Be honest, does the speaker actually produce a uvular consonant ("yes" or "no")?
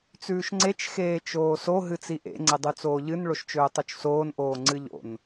no